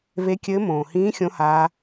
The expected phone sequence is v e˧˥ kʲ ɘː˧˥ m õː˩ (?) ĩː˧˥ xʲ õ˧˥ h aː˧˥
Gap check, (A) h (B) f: A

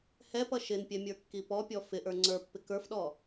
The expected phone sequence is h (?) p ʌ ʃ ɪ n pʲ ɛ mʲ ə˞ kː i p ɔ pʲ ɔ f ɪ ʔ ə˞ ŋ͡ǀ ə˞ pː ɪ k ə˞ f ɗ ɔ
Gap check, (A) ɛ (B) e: A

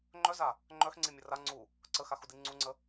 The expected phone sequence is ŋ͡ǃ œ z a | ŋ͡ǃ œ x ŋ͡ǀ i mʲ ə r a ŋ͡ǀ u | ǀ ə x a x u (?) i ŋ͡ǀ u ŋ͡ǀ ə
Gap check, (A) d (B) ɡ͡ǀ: A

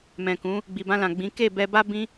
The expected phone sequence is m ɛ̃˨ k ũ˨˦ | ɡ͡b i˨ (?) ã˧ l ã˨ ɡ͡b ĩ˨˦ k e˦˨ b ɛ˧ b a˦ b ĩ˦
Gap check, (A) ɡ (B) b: B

